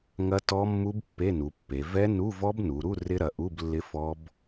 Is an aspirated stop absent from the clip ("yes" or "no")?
yes